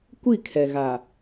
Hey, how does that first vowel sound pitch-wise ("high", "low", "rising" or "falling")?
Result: falling